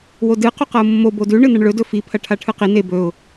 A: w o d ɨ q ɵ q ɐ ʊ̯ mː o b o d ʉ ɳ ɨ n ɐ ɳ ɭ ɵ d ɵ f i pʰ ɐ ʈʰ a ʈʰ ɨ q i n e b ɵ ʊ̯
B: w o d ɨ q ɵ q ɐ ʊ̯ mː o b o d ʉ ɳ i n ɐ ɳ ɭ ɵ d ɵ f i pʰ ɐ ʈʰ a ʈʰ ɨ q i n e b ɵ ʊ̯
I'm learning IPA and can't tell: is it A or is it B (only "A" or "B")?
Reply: A